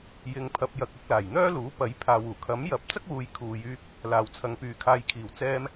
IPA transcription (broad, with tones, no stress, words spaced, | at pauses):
jɪ˨ŋpʰɐ˨p̚jɐ˨k̚ ʊ˧k̚laː˨˩jn̪œː˥luː˨˥ pɐ˨˥jpʰaː˨w uː˨˩kʰɐ˨˥mjɐ˨˥p̚ t͡sɐ˥k̚wuː˨˧jkʰuː˨jyː˧k̚ | laː˨wt͡sʰɐ˨ŋpyː˨ kʰaː˨jkʰiː˨˩wt͡sɛː˧m